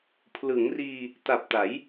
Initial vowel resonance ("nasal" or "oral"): oral